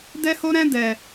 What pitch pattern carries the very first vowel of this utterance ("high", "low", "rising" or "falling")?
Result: high